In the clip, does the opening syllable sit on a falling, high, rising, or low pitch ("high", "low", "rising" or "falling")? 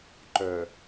low